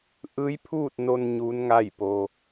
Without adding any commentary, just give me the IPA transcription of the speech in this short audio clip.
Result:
ʔ ɯː˧˥ j pʰ uː˥˨ t̚ n o˧ n ɲ uː˧˥ n ŋ a˥˨ j p o˩

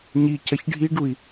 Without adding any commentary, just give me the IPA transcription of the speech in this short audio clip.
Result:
ɲ i c ɐ ç ɖʱ i ɖ u i̯

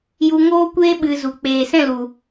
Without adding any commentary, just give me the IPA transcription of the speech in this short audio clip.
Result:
j u˧ ŋ oː˦ kʷ eː˦ ɓ ɨ˧ z u˨ k͡p eː˨ s ɛ̃˦˨ l u˨

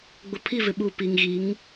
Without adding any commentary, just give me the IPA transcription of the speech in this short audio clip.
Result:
ɡ͡b ʊ˨ pʰ i˦˨ v ɪ˨ ɓ uː˨ p i˨ ŋ ɣ i˨˦ ŋ

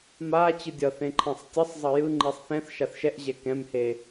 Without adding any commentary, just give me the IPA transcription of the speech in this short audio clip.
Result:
m a t͡ɕ ɯ dʲ ʌ θ ẽ ǃʰ ɛ̃ sˤ tʲ ʌ sˤ zˤ ʌ j ɯ ŋ͡ǃ i sˤ θ ɛ̃ θ ʃ a θ ʃ ɛ ʔ ʑ ɛ k ɛ̃ m h e

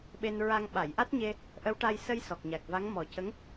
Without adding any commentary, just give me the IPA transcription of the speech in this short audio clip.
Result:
ɓ e˧ n ɹ a˧ ŋ ɓ a˨˩˨ j ʔ a˦˥ t̚ ɲ e˧ | ʔ ə˧˥ w ʈ a˧ j s ə˧ j s ɔ˨˩ k̚ ɲ a˨˩ k̚ v a˧˥ ŋ m ɔ˨˩˦ c ə˧˥ ŋ

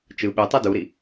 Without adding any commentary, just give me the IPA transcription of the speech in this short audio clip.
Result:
t͡ʃ ɯ ɓ y tˤ ɯ d u ɾ i

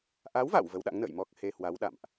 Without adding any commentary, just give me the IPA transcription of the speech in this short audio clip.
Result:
ʔ a˨˦ w v a̰˧˨ w v ə˨˦ w ɗ a̰˧˥ ŋ n ə̰ː˧˨ j m ɔ˦˥ k̚ h e˧ h w a˨˦ w ɗ a̰˧˨ m ʔ

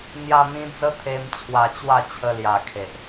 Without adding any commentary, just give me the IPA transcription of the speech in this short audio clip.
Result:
n̪ j a˧ n̪ ĩ˧ d͡z ə˦ t̪ʰ e˧ m t͡ɕʰ w a˧ t͡ɕ w a˥˧ t͡ɕʰ ə˧ l j a˨˩ kʰ e˨ ʔ

